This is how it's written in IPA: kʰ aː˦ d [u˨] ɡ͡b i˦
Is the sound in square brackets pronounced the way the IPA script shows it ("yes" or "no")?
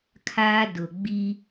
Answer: no